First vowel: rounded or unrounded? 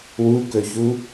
rounded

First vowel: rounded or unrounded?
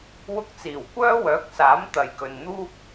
rounded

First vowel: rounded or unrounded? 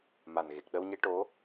unrounded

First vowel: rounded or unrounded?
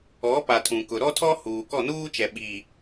rounded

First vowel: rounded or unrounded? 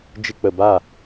unrounded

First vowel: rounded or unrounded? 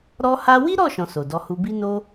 rounded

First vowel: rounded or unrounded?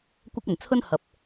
unrounded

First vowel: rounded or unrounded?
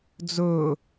rounded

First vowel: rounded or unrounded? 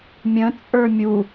unrounded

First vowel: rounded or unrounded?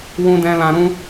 rounded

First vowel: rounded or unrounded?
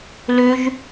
rounded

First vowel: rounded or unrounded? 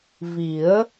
unrounded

